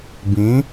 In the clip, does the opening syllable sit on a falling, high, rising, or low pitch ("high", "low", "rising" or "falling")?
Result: rising